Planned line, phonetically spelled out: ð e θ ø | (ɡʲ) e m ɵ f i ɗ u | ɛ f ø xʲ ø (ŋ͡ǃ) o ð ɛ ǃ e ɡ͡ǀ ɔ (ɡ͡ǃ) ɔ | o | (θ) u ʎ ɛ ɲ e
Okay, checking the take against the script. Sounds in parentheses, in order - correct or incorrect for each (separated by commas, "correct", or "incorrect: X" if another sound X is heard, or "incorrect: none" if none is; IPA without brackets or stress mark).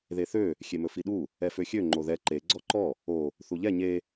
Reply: incorrect: xʲ, correct, incorrect: ǃ, correct